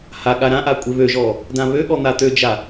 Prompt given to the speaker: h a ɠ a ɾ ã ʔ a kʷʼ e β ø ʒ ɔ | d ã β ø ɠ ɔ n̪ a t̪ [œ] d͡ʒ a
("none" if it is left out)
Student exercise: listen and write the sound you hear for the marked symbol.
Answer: ø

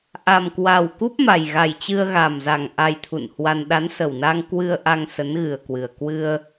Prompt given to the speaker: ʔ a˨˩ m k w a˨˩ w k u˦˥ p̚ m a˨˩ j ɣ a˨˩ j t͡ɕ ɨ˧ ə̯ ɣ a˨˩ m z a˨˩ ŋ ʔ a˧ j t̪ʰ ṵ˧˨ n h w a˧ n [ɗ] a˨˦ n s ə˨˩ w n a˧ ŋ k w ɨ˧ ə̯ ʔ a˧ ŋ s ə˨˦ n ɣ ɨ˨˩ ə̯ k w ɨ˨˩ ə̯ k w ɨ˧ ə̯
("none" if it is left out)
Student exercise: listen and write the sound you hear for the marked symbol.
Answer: ɗ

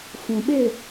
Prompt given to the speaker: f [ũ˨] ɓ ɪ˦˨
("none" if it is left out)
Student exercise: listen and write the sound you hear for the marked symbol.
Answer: ũ˨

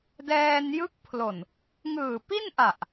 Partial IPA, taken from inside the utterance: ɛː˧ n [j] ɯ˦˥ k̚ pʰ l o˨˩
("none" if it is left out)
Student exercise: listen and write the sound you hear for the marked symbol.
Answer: j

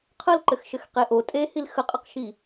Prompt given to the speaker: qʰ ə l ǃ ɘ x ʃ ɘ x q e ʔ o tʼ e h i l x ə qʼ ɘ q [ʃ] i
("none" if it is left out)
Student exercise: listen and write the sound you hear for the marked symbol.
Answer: ʃ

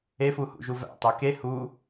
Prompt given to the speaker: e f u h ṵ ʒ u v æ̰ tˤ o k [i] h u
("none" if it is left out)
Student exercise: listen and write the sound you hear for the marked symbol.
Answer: e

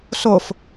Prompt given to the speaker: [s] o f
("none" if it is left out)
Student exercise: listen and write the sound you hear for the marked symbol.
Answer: s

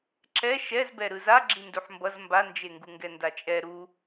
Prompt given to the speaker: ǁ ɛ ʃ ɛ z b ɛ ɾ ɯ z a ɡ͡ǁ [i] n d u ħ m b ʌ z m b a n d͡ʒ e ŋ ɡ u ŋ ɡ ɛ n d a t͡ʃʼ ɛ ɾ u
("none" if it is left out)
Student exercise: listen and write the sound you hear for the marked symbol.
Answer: i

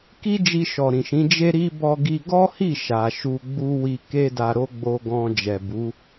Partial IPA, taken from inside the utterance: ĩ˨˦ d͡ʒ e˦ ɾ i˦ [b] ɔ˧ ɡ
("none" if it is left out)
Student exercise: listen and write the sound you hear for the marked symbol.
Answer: b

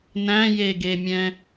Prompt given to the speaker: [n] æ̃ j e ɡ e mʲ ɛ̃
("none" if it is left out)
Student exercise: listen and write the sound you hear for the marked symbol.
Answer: n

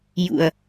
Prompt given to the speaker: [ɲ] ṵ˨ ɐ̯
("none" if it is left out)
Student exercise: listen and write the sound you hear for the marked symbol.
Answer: j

